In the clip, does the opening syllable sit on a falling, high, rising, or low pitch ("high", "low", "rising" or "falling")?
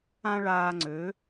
high